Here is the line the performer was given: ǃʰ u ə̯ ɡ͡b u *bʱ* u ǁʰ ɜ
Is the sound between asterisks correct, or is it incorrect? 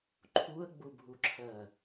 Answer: correct